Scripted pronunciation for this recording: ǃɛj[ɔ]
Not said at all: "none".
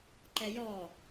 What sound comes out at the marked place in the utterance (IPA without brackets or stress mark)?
ɔ